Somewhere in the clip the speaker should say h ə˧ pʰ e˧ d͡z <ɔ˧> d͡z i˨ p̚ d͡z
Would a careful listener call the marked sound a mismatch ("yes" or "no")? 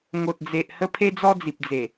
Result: no